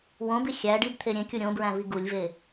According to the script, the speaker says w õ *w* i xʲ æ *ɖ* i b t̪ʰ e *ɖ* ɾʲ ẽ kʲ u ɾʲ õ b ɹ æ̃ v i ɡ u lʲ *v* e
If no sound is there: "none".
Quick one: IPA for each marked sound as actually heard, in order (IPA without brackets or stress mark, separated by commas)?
b, ɖ, none, v